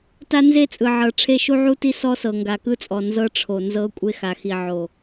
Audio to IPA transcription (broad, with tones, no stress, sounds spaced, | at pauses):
t a˦ n z e˦ t͡sʼ ɯ˨ ʕ ɤ˨ ʈ͡ʂʰ e˦ ʃ u˦ ʕ u˦ t i˦ s ɔ˦ s ɤ˨ ŋ ɡ a˨ k ɯ˦ t͡sʼ ɔ˨ n z ɤ˦ ʈ͡ʂʰ o˨ n z ɤ˦ kʷʼ e˦ x a˨ x i˨ ʕ o˨